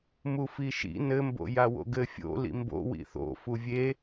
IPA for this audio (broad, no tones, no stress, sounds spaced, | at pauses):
m u f i ʃ ḭ n ɘ m b o̰ j a w o̰ ɡ ɘ fʲ o̰ l ḭ m b o̰ w ḭ θ o̰ f u vʲ e